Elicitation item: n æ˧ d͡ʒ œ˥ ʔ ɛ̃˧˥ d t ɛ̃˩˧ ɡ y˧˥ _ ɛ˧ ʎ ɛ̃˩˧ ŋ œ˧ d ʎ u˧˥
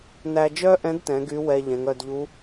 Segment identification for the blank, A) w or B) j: A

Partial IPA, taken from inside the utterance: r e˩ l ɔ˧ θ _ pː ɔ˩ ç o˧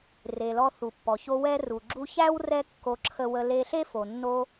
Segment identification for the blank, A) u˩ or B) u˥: A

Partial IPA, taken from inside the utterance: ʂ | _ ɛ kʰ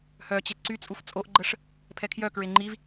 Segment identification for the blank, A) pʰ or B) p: A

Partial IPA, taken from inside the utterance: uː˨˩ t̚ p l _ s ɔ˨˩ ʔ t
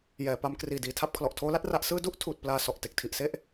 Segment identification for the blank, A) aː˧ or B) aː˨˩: A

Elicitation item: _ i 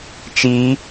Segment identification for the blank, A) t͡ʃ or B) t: A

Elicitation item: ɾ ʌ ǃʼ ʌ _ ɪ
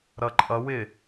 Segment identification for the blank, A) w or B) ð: A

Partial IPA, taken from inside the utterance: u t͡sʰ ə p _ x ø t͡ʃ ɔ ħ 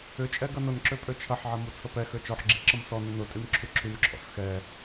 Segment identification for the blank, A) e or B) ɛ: B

